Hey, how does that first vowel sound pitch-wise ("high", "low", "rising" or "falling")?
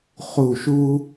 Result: falling